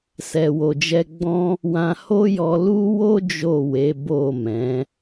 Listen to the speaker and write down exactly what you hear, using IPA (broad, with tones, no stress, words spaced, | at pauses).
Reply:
sɛ˨wo˨d͡ʒɛ˧ ɡ͡bɔ̃˦ | wã˧ho˦jɔ˧ lu˦wo˦ d͡ʒo˦˨we˨˦ bo˦˨mɛ̃˨˦